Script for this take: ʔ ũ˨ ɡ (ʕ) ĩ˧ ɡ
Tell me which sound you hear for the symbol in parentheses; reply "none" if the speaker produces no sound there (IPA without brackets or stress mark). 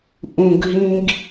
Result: ɦ